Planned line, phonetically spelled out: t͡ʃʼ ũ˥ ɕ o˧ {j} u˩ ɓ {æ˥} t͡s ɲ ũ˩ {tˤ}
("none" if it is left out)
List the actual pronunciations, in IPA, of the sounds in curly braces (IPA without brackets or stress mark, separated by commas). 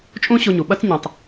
ɲ, ɐ˥, tˤ